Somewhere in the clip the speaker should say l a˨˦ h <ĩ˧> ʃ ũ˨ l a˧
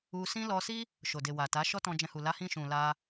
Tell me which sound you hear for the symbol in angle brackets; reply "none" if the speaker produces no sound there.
ĩ˧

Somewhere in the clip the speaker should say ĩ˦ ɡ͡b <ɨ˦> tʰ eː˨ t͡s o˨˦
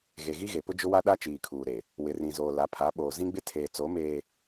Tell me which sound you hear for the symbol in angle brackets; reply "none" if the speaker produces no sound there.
ɪ˦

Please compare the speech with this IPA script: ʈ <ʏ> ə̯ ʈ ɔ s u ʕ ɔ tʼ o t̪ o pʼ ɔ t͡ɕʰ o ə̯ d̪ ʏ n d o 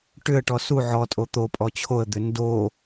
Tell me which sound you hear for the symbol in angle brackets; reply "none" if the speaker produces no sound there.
ʏ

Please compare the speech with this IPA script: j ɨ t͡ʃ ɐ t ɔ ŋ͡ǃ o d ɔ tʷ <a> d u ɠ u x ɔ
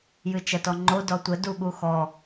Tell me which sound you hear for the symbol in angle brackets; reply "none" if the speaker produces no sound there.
ə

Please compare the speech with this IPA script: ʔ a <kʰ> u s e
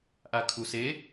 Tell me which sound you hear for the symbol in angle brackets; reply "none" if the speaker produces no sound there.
kʰ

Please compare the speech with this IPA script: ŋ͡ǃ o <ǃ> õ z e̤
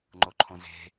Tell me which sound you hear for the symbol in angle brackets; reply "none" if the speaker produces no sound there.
ǃʰ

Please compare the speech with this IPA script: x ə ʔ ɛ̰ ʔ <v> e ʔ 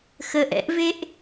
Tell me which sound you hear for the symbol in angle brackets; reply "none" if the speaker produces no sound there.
v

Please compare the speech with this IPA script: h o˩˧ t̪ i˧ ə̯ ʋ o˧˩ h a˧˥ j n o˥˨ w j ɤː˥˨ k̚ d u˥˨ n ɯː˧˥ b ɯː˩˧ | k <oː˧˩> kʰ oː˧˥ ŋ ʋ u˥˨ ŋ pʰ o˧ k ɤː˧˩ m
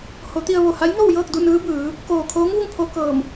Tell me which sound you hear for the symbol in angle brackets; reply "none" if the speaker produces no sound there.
oː˧˩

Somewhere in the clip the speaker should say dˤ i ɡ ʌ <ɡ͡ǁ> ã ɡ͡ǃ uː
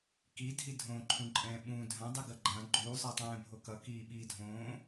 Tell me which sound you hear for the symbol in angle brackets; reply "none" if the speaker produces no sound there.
ɡ͡ǃ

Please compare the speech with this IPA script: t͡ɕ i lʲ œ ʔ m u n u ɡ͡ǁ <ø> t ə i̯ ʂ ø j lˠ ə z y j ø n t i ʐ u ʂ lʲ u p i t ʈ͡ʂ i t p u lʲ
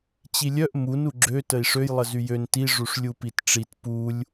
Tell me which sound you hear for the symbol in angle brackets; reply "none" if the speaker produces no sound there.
ø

